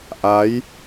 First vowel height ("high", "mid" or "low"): low